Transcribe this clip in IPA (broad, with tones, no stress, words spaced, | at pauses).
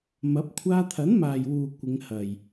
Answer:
mɐ˨˥p̚ kʷʰaː˧t̪ʰɐ˨˥nmaː˨j wuː˨ kʷɪ˨˧ŋhɐ˨j